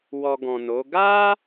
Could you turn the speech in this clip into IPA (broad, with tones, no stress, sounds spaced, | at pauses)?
w ɔ˧ ɡ ɔ̃˨ n o˨˦ ɡ a˦